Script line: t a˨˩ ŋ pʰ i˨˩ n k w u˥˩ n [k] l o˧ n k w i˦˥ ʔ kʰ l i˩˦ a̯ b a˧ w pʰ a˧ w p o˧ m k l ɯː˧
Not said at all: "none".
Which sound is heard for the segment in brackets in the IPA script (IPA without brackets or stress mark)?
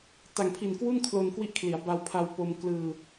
kʰ